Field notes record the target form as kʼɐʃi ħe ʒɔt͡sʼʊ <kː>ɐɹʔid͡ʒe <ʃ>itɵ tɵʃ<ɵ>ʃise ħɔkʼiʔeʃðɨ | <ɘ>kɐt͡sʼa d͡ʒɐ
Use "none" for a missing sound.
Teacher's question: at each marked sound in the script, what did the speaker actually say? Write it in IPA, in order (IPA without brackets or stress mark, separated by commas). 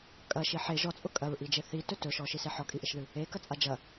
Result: kʼ, θ, ɔ, e